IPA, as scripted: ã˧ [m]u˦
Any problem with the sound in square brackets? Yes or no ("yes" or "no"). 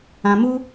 no